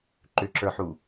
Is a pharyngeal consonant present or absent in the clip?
present